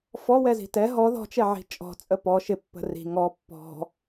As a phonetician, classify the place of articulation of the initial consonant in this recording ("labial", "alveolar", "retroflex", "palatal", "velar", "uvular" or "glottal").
labial